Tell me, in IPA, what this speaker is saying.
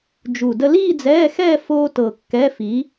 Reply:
d͡ʒu˧˩də˥ liː˥˧d͡zɛː˧˥˧xɛː˥˧ foː˥tɤ˧˩ kːɛ˧˥˧fi˨˥

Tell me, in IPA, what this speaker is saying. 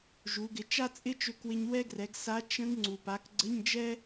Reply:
ʒu˩˧ɡɪ˩˧ t͡ʃa˥t͡sʼɪ˥t͡ʃø˧kwɪ˧ɲ wɛ˥ɡrɛ˩˧ɡsa˧˥ t͡ʃə̃˧˥ɡ ŋ͡ǀu˩pa˩˧k ɡ͡ǀə˧˥˧ɲd͡ʒɛ˥

